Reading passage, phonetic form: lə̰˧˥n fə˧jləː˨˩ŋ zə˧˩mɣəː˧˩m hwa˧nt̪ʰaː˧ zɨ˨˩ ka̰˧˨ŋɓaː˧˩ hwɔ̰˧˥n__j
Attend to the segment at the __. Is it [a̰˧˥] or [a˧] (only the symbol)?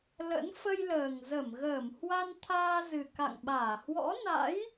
a̰˧˥